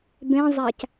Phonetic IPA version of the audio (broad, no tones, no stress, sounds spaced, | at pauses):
b ẽ zˤ æ c